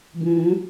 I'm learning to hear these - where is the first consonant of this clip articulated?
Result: lips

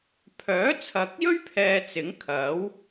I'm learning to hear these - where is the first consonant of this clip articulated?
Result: lips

